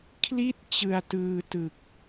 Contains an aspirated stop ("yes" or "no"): yes